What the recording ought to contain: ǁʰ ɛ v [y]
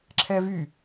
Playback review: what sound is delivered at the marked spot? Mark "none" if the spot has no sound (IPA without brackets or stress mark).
y